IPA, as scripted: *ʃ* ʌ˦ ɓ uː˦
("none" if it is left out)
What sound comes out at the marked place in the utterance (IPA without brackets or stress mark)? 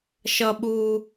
ʃ